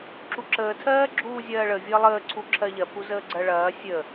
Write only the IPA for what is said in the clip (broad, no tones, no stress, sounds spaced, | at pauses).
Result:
ǁ u ǁ əː tʰ ɜː ɡ͡ǁ uː zʲ ɜː ɭ ə vʲ əː lˠ əː ǀʰ u ǁʰ ɜ ʎ ɜ pʰ u z əː ɡ͡ǀ ɜ ɭ ɐː sʲ ə